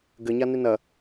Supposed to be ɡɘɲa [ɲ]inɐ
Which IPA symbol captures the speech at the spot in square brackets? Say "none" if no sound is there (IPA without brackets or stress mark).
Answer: n